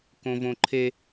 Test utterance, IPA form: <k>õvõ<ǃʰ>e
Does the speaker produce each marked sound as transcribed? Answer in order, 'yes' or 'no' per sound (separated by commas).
yes, yes